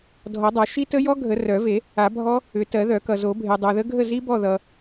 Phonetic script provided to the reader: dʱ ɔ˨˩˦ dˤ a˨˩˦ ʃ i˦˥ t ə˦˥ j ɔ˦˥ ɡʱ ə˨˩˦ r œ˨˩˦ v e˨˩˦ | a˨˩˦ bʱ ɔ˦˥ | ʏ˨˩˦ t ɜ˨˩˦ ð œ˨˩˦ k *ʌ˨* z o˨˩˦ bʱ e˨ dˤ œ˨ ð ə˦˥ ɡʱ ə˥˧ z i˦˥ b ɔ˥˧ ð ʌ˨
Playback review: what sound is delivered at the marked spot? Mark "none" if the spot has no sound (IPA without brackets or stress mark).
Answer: ʌ˨